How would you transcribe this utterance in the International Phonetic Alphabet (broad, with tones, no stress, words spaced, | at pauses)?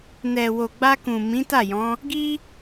nɛ˨ wo˨ɡ͡ba˧kũ˨ mĩ˨˦ta˦˨jɔ̃˨˦ | ɡi˦